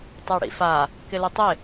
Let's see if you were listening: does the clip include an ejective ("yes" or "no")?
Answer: no